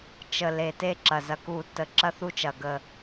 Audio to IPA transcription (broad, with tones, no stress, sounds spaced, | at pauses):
t͡ʃ ə˨˩ l e˨˩ t e˦˨ ǁ ɐ˨˩ z ɐ˨˩ k u˧˩˧ tː ə˨˩ ǁ ɐ˦ θ u˦˨ t͡ʃ ɐ˨˩ ɡ ə˨˩